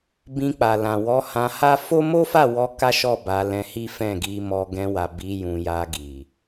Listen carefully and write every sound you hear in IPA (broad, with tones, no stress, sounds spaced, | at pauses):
b ĩ˧ k͡p a˨ l ã˨ w ɔ˨˦ h ã˧ h a˦ f o˦ m o˦ f a˦˨ w ɔ˧ k a˦ ʃ ɔ˦˨ b a˧ l ɛ̃˧ h i˦ f ɛ̃˦˨ ɡ i˧ m ɔ˧ ɡ ɛ̃˧ w a˨ b i˨˦ j ũ˧ j a˧ ɡ i˨